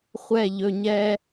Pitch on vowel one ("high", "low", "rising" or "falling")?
falling